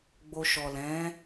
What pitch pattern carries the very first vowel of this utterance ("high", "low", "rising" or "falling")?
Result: low